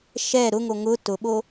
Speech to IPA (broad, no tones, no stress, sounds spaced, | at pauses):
ʃ ɛ ɾ ʊ ŋ o ŋ ʊ t ʊ ɓ o